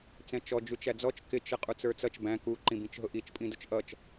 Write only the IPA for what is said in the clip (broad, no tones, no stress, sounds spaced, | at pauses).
t͡s ɛ̃ t͡ʃ ɔ d͡ʒ u t͡ʃ æ d͡z ɔ t͡ʃ k ɪ t͡ʃ ə qʼ u t͡s ə˞ t͡s ʌ t͡ʃ b æ̃ k u ǃ ĩ b ĩ t͡ʃ ɦ ʊ ʔ i t͡ʃ pʼ ĩ d ʊ t͡ʃ ʔ ʌ t͡ʃ